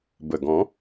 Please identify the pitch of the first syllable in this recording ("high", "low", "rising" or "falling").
low